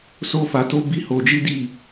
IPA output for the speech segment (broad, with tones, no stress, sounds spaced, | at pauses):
s o˦ f a˧ t o˦ b i˦ h o˧ d͡ʒ i˦ d i˦˨